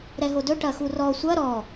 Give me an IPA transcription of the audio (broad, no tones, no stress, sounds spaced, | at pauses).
ɾ ɛ ɦ o d ɵ ʈ ɐ x u r ɔ sʷ ɐ ɾ ɔ